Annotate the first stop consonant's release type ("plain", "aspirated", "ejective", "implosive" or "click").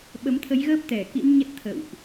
implosive